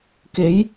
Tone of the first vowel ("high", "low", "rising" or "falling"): rising